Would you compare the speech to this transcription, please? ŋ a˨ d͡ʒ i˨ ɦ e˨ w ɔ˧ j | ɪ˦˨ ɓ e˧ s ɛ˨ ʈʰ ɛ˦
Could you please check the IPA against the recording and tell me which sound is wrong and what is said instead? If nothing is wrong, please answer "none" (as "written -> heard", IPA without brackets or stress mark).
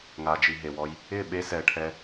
none